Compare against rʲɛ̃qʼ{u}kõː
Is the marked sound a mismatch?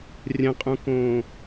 yes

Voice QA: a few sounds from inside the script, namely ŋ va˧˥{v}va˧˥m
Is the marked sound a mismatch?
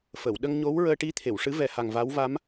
yes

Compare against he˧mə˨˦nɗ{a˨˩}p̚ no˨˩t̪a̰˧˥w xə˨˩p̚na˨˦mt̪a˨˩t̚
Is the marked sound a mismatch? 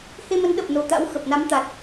yes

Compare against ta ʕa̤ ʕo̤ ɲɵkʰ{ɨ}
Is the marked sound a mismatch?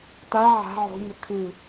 no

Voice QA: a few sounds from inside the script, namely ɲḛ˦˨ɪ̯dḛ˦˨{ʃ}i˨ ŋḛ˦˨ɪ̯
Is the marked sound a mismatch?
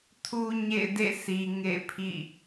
yes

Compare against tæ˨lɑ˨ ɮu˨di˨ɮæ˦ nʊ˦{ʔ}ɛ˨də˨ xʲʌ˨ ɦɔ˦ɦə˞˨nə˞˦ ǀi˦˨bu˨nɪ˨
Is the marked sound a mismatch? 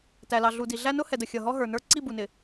yes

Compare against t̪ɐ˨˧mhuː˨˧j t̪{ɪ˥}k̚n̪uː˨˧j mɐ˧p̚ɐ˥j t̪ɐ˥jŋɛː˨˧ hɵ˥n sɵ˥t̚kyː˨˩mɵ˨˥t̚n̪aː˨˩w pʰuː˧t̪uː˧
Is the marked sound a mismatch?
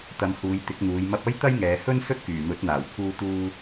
yes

